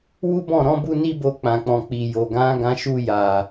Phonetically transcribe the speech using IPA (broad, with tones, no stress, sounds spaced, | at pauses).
w u˦ b ɔ̃˦˨ ɾ ɔ̃˨˦ b u˦ n i˦ b o˧ k͡p ã˨ k͡p ɔ̃˨ k͡p i˨ j o˨ ɡ ã˨˦ ɡ ã˧ ʃ u˧ j a˨